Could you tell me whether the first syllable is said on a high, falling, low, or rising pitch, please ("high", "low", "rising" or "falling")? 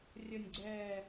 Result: falling